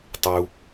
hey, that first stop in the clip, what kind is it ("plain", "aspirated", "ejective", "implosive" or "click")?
plain